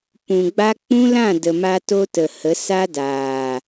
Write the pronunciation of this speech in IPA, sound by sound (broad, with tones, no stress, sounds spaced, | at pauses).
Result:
p ũ˨ ɡ͡b a˦ k͡p ũ˦ l ã˦˨ d ə˨ m a˦ t o˦ t ə˨ h ə˨˦ s a˦ d aː˨